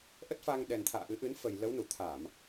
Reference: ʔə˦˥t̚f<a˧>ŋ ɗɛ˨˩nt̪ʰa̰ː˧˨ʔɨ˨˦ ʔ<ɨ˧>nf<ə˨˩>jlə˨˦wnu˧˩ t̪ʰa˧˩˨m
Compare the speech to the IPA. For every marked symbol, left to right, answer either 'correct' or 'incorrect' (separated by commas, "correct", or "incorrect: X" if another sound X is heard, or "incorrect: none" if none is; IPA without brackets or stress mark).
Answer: correct, incorrect: ɨ˨˦, correct